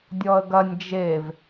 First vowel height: mid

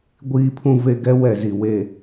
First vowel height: high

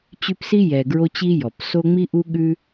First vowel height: high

